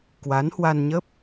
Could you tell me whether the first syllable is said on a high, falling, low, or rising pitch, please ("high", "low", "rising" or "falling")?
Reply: rising